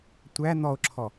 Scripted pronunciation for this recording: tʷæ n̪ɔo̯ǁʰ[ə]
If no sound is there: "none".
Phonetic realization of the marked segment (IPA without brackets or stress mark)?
ɔ